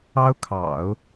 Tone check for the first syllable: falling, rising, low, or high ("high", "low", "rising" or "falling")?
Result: high